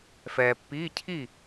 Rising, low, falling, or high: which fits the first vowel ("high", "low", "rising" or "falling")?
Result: low